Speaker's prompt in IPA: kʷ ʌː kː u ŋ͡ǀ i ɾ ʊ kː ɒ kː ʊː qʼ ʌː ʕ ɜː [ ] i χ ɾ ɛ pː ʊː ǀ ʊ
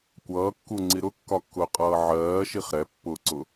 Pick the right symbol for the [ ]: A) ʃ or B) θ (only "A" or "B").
A